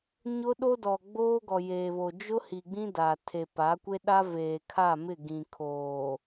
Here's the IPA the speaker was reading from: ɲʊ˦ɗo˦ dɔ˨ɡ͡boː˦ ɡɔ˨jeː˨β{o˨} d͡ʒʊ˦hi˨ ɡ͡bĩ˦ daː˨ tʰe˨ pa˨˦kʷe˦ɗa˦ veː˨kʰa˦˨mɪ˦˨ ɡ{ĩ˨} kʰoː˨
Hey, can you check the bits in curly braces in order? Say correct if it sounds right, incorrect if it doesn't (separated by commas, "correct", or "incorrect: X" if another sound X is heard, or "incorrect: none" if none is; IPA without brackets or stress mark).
correct, correct